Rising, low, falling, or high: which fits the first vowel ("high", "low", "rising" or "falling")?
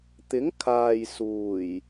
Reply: rising